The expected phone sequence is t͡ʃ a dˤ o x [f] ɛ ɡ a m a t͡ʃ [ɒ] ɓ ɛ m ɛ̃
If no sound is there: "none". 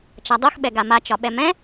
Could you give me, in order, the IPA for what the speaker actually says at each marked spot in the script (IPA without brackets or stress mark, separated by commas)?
ɓ, ɒ